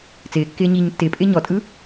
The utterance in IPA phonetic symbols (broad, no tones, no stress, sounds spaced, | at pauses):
t͡s ɪː kː ɪː ɲ iː ɲ tː ɪː pʼ ɪː ɲ ɔ tʼ ɯ